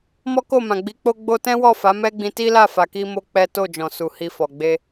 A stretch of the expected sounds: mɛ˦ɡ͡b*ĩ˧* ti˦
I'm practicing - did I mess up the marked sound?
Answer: no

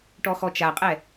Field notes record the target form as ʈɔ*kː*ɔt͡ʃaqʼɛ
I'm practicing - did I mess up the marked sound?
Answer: yes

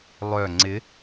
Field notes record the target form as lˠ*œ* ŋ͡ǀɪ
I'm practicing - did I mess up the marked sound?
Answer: no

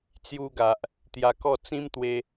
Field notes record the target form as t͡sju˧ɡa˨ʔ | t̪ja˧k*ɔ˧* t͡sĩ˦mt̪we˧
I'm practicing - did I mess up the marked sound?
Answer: yes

